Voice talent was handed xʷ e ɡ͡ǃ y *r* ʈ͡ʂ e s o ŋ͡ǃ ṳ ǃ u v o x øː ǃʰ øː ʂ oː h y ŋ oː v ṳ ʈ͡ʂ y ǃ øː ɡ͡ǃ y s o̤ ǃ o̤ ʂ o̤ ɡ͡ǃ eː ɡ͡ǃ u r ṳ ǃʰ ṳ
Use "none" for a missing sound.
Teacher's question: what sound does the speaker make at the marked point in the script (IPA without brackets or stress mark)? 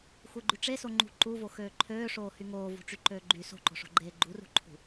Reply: none